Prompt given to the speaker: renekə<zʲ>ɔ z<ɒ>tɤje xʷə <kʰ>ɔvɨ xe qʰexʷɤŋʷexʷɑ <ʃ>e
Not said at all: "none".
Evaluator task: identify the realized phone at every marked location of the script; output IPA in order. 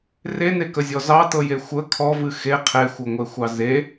zʲ, ɑ, kʰ, z

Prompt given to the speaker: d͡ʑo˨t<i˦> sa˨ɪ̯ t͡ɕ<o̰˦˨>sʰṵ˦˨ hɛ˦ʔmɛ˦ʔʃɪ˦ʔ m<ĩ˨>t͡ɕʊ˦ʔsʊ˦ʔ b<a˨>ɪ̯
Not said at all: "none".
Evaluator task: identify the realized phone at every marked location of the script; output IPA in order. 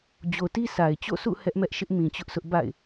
i˦, o̰˦˨, ĩ˨, a̰˦˨

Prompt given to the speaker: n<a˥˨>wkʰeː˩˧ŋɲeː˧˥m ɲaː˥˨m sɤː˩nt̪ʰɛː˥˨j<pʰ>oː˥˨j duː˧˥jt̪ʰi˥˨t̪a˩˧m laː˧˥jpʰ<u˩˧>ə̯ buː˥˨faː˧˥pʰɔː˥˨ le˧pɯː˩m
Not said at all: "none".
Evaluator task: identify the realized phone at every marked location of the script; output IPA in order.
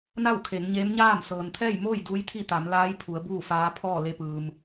a˥˨, m, u˩˧

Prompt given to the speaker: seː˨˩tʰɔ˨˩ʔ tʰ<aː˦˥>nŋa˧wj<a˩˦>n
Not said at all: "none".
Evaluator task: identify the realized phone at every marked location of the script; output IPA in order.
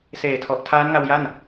aː˦˥, a˥˩

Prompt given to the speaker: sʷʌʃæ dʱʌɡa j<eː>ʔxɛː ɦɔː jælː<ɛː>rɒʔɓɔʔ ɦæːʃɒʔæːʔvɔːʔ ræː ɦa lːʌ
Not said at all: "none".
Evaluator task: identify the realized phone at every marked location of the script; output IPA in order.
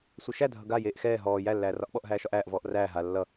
eː, æː

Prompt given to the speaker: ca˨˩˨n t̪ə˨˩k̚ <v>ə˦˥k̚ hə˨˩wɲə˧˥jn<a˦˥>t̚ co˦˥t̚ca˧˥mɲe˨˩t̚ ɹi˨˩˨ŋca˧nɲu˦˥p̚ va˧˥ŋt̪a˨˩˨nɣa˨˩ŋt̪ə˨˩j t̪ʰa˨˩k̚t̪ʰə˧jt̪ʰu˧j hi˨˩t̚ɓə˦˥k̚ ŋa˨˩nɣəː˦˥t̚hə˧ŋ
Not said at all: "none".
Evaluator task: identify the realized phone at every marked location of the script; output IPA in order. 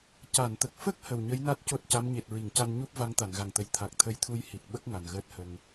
f, a˦˥

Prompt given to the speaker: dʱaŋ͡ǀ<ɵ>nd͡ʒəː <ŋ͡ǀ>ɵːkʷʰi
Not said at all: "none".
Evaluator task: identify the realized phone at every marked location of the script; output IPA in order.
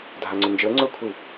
ɵ, ŋ͡ǀ

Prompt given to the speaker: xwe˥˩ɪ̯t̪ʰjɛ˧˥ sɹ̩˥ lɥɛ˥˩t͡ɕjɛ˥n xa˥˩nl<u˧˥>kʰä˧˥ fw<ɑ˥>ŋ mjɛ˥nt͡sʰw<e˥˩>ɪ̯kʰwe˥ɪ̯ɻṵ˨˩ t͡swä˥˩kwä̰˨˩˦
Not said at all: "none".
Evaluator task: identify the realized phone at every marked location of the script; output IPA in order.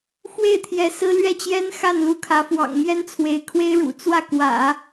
u˧˥, ɑ̰˨˩, e˧˥

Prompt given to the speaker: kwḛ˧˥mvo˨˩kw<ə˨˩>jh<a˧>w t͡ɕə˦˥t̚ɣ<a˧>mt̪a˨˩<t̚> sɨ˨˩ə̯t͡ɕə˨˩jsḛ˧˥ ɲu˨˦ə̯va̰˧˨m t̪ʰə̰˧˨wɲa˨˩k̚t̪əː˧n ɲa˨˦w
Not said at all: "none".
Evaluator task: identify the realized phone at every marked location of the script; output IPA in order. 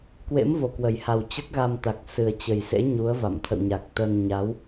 ə˨˩, a˨˩, a˧, k̚

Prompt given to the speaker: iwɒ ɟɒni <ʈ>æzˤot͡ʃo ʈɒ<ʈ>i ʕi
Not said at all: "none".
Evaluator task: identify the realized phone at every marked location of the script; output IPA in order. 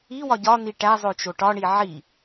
ʈ, ɳ

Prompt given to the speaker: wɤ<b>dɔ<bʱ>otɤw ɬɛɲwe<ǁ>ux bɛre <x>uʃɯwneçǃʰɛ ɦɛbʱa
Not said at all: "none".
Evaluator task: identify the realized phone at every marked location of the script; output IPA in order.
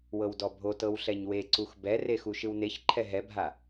w, bʱ, ǀ, x

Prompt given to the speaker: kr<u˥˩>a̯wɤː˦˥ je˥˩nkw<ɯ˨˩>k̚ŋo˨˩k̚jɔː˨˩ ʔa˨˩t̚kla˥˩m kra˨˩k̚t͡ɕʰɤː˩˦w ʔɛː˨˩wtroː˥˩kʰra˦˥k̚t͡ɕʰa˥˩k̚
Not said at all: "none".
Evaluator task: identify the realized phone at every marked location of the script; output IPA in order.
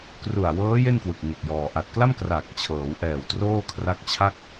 u˨˩, ɯ˨˩

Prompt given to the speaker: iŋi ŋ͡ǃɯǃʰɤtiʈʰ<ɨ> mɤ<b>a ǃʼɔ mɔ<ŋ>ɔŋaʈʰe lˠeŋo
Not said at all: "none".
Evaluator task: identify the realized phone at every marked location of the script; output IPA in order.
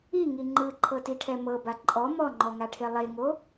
ɛ, b, ŋ͡ǃ

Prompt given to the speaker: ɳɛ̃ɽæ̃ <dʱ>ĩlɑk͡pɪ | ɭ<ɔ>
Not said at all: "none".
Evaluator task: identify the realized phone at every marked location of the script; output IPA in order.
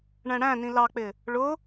n, ʊ

